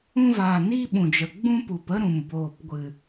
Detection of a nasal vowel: present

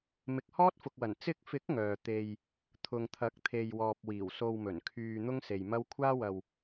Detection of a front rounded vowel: present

